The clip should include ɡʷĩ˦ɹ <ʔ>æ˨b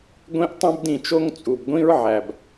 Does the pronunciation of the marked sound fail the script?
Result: yes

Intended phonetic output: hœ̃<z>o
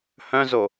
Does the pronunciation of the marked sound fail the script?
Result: no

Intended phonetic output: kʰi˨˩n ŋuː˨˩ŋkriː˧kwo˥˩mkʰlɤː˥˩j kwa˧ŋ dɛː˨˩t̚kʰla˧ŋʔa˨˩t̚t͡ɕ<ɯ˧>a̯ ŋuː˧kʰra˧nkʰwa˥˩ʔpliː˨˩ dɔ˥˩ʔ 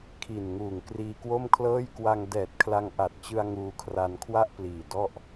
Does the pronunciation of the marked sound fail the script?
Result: no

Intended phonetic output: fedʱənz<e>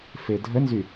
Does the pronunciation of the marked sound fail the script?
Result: yes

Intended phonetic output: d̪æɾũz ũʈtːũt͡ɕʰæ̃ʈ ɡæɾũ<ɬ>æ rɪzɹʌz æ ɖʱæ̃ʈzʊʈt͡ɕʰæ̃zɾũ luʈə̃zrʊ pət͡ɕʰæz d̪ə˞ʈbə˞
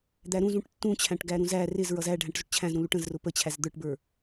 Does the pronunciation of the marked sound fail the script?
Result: yes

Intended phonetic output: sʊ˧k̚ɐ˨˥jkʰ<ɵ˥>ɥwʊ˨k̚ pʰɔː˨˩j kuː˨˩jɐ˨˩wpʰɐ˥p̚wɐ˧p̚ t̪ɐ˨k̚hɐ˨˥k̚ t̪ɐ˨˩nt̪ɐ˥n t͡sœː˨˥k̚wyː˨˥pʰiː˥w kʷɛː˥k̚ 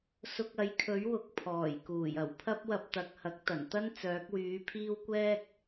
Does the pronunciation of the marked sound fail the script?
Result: yes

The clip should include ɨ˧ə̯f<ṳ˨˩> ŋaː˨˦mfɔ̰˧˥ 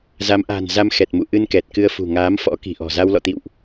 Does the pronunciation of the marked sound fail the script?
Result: no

